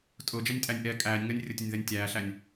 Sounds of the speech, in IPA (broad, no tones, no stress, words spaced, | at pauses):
tʼʊːd͡ʒɛnʲtʼænʲ ʔɛ kʼæːnʲ ŋɜnʲrʲʊtʲʊnʲðɜnʲ tʲæːɬænʲ